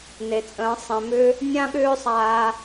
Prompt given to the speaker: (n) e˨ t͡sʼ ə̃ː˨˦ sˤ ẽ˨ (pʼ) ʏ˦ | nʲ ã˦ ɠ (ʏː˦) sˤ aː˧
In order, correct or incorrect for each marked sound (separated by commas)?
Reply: correct, incorrect, correct